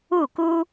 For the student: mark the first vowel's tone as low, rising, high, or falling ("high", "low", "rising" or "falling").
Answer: falling